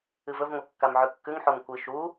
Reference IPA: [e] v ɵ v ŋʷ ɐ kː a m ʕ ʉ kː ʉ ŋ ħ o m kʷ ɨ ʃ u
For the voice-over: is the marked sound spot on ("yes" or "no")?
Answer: no